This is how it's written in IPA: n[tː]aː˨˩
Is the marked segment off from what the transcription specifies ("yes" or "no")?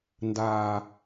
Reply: yes